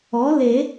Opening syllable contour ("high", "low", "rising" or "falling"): rising